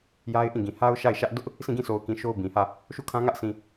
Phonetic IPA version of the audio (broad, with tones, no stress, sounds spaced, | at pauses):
j a˦ ɪ̯ ʔ ĩ˦˨ ɡ ĩ˨ h a˦ ʊ̯ ʃ a˦˨ ɪ̯ ʃ ä˦ ʔ d ʊ˦ ʔ | s ĩ˦˨ ɡ ĩ˦˨ sʰ o˨ ʊ̯ k ĩ˨ ʃ o˦ ʊ̯ b ĩ˨ h ä˦˨ | ʃ u˦˨ kʰ ã˦ ŋ ä˦ ʔ s ĩ˨